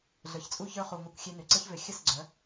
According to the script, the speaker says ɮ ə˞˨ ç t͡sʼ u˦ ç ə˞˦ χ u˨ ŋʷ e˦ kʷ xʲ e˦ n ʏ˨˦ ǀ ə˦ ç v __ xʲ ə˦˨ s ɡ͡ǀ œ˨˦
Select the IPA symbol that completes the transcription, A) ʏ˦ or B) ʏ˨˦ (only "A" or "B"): B